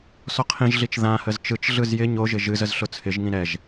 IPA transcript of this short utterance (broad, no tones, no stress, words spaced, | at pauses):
sɔqʰĩʒɮit͡ʃ ðãhəz t͡ʃɯt͡ʃɮɯz jɪ ɲoʒɪ ʒɨzəz ɬʊt͡sʰɪʒŋĩ ɾɛʒ